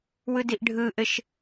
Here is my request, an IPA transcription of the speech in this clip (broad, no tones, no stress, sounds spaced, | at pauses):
w ɯ d i ʔ ɖʱ ɯ ʔ ɘ ʃ